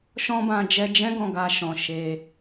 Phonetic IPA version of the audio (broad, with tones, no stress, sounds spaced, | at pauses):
ʃ ɔ̃˦ b ã˧ d͡ʒ ɛ˧ d͡ʒ ɛ̃˦ ɡ ɔ̃˦˨ ɡ a˧ ʃ ɔ̃˨ ʃ e˧